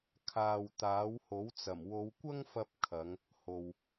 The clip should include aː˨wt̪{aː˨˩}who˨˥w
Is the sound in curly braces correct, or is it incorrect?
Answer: incorrect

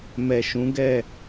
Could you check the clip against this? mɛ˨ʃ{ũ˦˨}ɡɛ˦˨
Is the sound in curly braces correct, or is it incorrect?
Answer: incorrect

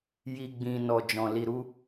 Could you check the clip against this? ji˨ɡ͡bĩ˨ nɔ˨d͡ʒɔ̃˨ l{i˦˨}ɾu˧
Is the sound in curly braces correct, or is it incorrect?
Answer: incorrect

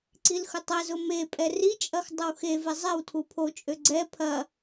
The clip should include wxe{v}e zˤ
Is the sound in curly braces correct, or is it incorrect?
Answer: correct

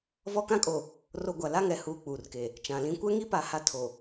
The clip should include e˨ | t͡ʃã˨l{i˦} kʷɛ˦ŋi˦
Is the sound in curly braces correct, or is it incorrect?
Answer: incorrect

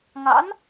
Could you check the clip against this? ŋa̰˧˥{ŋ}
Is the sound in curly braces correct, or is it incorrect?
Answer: incorrect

